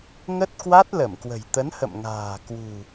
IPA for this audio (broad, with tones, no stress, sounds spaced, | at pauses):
ŋ ə˦˥ t̚ k w a˦˥ t̚ l ə˧˩ m k w ə̤˨˩ j t̪ ə˨˦ n h ə̰˧˨ m ŋ a̤ː˨˩ k w ṳ˨˩